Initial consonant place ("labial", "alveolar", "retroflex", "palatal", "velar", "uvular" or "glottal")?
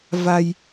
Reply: labial